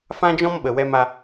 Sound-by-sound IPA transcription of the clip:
fã˦d͡ʒɔ̃˦mɓə˨wɛ˧m a˧

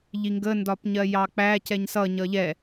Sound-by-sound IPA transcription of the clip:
ʎiŋɡə ndɒpɲɜjɑk͡pæ cɛɲsʌ ɲʌʎɛ

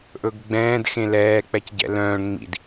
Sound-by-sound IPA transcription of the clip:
ʔɵɡɡ͡bɛ̃ːd xẽlɛːk͡pɛc ɟɛ̰lœ̃ːɳ ŋ͡mḭd

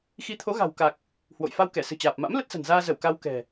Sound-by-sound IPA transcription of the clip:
xi˨˦t̪ʰo˨˦ɣa̤˨˩wka˨˩k̚ | hwo̰˧˨jfa˧wkɛ˧˩ sɨ̤˨˩t͡ɕaː˨˩p̚ma̰˧˥m lə˦˥t̚sə̤˨˩nzaː˧zə˧˩w ka˧wkɛ̤˨˩

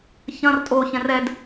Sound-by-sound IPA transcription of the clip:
çɐ̃r tʼo çɛ̃rɛd

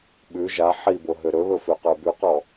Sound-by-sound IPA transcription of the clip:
ɓʉ ʒa ħibo ɦøɾɵβɵ føqə˞bʉqɔ

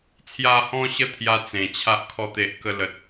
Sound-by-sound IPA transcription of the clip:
t͡sʰja˧hɔ̃˧ɕə˧ t̪ʰja˦t͡sẽ˨˩t͡ɕʰa˦ʔ kʰɔ˧t̪e˨ʔ kə˧ lə˨t̚

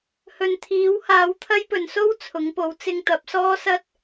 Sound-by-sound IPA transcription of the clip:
hɵ˨nt̪ʰiː˨˥w haː˨˥wt̪ʰɐ˥jpɵ˨˧n so˥wt͡sʰʊ˨˧ŋpo˨˧w t͡sɪ˧ŋt̪ɐ˨˥p̚sɔː˥sɐ˥t̚

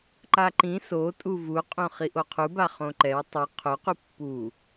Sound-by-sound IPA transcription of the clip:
ǃaǃĩ sotʼu vuqʼõ χiʔoqʰuba χõǃɛw tˤɯ qʰoqu pːu

